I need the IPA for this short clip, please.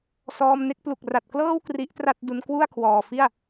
sɔː˧mne˦˥k̚plu˨˩k̚ ra˨˩t̚klɤː˥˩w kri˦˥ʔtra˥˩t̚du˧n kwu˥˩a̯kʰwɔː˨˩fi˥˩a̯

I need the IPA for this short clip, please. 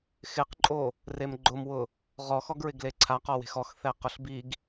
xɪqǃʼo | remɡ͡ǃʊmwʊ | ʁɔxɔɡɹɪɡ leǀʰaqɔwe̤x ɔxθɛ qʊɬbiɡ

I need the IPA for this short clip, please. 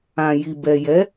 ã˨ji˨ bɛ˨jɛ˨˦

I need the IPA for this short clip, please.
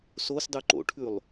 sosdˤʉ ǃo̰ʈʰʉlˠ

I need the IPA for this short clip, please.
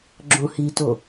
ɡ͡ǁõhito

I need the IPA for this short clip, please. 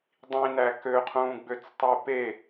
dˤĩnæ køqʰũːɡ͡bøt͡stˤe pe

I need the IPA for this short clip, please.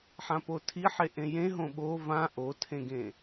ħãpotʰiħe ʔẽjẽ ɦõɓo vã ʔotʰẽɡẽ

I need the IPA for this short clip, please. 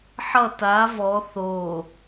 ħʌ ta vɔ θo

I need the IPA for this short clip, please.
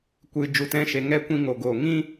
kʷɨ˨ d͡ʒu˨tɛ̃˧ʃe˨ ŋɛ˦ kʷĩ˧ŋo˨ɡoː˨ ŋĩ˦

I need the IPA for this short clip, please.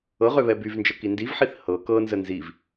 ɤʁø βɛbyvnd͡ʒə kindivħiθ hɤ kɤnzə nziv

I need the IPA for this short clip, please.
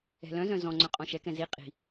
ɛ̤lœ̃zœ̃ zɔ̃ŋ͡ǀœ̃ qʼɔ̃ʃɛkɛ̃ zi qʼi̤

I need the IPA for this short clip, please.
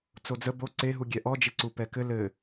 t͡sod͡zə bo ǀeɦu ɡʲɛʔɔd͡ʒeǀu pɛkɘ lɘ

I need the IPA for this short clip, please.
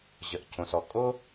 ʑə˩ʔcʰõ˩sɔ˩ kʼo˥

